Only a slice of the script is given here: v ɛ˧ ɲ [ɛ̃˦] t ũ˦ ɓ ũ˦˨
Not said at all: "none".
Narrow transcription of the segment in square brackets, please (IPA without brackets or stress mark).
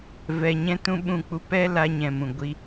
ɛ̃˦